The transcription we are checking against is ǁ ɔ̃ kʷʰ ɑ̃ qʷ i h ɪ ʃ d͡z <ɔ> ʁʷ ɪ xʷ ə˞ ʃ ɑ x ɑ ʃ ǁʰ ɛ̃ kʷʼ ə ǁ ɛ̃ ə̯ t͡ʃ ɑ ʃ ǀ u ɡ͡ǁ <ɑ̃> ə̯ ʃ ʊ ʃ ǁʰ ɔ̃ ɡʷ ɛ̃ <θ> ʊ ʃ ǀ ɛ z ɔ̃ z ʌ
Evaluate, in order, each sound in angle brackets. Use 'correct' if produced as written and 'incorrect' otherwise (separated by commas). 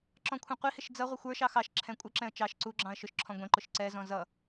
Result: incorrect, correct, incorrect